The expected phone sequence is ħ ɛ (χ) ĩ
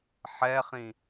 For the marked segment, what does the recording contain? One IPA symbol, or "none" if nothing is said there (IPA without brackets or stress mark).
χ